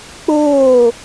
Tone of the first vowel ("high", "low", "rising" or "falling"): falling